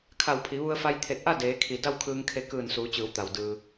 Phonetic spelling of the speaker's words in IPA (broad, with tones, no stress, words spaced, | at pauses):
kʰa˧˩wpʰi˩˧ʋu˧ə̯fa˧j t̪ʰe˧˩t̚ʔa˥˨ deː˩˧kʰi˩ da˥˨wkʰɯː˧ŋkʰe˧ kɯː˧˩nsuː˩˧t͡ɕɯː˩˧wt̪a˩w dɯː˩